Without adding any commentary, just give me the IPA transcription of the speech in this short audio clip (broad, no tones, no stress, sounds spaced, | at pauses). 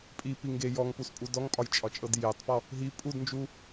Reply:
pʼ i p i ŋ ɡ e j ɔ ŋ p u s pʼ u d ɔ ŋ pʼ ɒ j t͡ʃʼ ɒ t͡ʃʼ ɤ d j e tˤ p ɔ | ɦ i pʼ u d n d͡ʒ u